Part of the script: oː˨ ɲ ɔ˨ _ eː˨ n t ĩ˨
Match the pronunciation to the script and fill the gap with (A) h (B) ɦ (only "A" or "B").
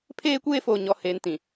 A